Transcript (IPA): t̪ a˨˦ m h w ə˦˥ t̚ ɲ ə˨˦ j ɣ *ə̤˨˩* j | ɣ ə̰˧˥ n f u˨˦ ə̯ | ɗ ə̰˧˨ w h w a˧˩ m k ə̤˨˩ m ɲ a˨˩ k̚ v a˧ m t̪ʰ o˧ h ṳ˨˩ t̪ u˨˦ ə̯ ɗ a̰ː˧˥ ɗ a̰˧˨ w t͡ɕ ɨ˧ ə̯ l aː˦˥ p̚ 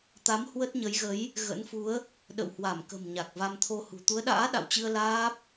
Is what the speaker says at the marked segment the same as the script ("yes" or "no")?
no